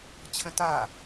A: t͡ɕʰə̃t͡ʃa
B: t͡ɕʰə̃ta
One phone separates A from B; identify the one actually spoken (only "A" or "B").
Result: B